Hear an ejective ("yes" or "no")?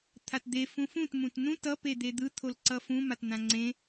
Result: no